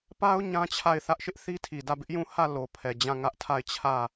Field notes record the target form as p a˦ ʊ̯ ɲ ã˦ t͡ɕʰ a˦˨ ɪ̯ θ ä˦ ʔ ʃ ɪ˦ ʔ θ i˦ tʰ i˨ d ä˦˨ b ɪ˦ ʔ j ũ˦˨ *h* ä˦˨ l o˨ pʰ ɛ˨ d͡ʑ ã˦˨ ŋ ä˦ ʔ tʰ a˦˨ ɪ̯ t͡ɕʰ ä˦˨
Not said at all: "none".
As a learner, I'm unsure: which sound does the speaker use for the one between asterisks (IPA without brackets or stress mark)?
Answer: h